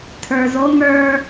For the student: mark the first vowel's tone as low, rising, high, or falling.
low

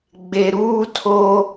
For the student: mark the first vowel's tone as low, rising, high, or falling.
low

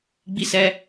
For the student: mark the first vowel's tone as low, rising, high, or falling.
high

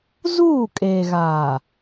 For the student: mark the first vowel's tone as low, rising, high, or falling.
falling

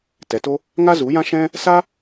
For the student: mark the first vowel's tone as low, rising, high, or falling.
low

